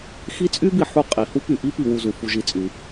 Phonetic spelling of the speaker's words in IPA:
x i˦ t͡sʼ y˥ b i˨ ħ u˦ qʼ i˩ h u˥ p y˨ ʔ i˥ p i˨ w u˨ z u˩ f u˨ ʒ i˨ t͡sʼ y˩

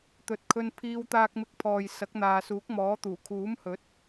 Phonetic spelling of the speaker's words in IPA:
t̪ ɵ˨˥ t̚ kʰ ɵ˧ n pʰ iː˧ w t̪ aː˧ k̚ m ɪ˧ k̚ pʰ ɔː˨ j s ɐ˨˥ k̚ n̪ aː˨ s uː˨˥ k̚ m ɔː˨˥ t̪ uː˨˩ kʰ uː˨˥ m h ɵ˨˥ t̚

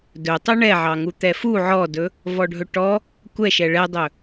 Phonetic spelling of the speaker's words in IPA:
d ɵ tˤ u ɳ ɛ ʕ ɑ ŋ u t̪ ɛ f u ʕ ɔ d ɵ | v ɔ ɖʱ ɵ ʈ ɔ | kʷ ɛ ʃ ɛ ɭ ɛ dˤ ɵ

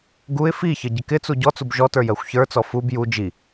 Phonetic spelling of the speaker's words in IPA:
ɡ u ɪ̯ f i ç ə ɟ ɪ k ɪ t͡s u ɟ ɔ t͡s u b ʒ ɔ t ə˞ j ɜ xʷ ç ə˞ t͡s ɔ f u b j u d͡ʒ i

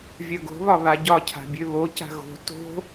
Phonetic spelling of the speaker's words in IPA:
vʲ œ ɡ o̤ β ɒ β a ɟ ɒ cʰ a̤ bʲ ø β o c a̤ ɣ o̤ t o̤

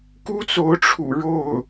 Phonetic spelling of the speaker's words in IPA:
k u˥ t͡s o˧˥ ʊ̯ ʈ͡ʂʰ ṵ˨˩ ɻ o˥˩ ʊ̯

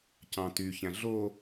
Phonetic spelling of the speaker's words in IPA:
c ɑ̃ t y ç æ̃ ɮ o

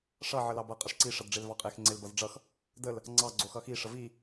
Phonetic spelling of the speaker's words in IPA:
ʂ ʌ ʕ ə l ɑ b ʌ qʼ ə ʂ ǀ i ʂ ʌ d ɖ͡ʐ e l v ɑ qʼ e x ŋ͡ǀ e l b ʌ z ɖ͡ʐ ʌ x | d ə l | ŋ͡ǀ ɑ ɡ͡ǀ o x ʌ x i ʂ ə v i

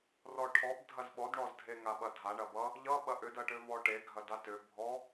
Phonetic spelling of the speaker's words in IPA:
r ɔ ʈʰ ɔ b dʱ ɐ z ɓ ɔ d ɳ ɔ z dʱ e ŋ a ɓ ɐ dʱ a ɳ ɐ b ʌ | ʎ ʌ ɓ ɐ ʔ ʏ d ɐ ʈ ʏ v ɔ ʈ e ɡʱ ɐ d a t ʏ bʱ ɔ

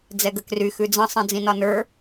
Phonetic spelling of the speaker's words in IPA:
d͡z ɛ ɡ ə k r y x ʉ d͡z ə̃ sˤ ĩ d͡z ĩ n ɒ n ə˞

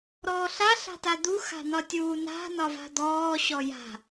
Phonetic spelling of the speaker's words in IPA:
ɾ ɔː ɬ a ɬ a̤ t a d̪ u x a̤ n̪ ɒ tʲ uː n a̤ n ɒ v a̤ d̪ ɔː ɕ ɔ j a̤

